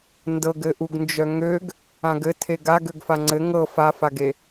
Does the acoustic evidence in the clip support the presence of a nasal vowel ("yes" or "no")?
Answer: yes